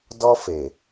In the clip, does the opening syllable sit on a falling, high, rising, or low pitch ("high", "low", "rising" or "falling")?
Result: high